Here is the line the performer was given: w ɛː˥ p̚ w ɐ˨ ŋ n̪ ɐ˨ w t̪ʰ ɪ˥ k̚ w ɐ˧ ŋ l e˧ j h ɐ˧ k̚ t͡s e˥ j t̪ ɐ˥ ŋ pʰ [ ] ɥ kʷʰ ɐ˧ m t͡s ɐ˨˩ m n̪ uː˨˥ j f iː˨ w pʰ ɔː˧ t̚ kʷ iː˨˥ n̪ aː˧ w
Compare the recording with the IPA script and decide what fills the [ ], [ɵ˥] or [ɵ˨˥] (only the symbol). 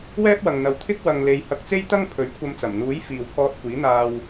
ɵ˨˥